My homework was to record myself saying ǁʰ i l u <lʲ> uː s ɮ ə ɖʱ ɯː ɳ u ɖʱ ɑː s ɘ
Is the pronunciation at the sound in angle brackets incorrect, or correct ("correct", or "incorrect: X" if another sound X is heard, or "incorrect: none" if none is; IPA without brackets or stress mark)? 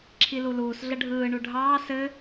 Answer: incorrect: l